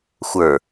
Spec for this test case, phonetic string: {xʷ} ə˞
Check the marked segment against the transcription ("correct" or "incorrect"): correct